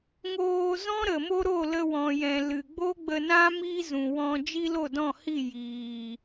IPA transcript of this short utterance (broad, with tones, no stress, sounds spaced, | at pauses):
ŋ oː˧ z ɔ̃˦ ɾ ə˨ m o˦ ɾ o˦˨ l ə˧ w ɔ̃˨ j ɛ̃˨ l ɨ˨ ɡ͡b o˦ ɡ͡b ə˧ n ã˦ m i˦ z ũ˨ w ɔ̃˧ d͡ʒ i˦ l o˦˨ d ɔ̃˦˨ h i˦˨ j iː˨